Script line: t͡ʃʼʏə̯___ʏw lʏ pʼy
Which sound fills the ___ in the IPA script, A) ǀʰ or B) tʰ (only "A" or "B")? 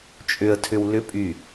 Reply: B